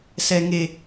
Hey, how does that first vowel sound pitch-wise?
high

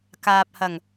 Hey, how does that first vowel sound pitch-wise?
low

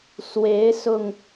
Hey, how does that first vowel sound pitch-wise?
rising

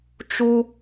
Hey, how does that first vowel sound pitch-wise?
high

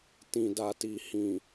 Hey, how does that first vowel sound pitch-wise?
low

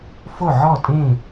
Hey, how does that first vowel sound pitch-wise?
falling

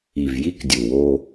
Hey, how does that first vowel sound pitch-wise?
low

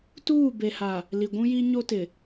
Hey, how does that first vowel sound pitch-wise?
falling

